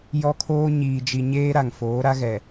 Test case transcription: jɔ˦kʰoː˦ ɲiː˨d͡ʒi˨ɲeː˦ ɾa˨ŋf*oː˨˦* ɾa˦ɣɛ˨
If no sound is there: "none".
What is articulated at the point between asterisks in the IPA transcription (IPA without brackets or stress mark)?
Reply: oː˨˦